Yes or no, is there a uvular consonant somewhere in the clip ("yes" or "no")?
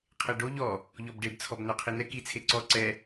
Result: yes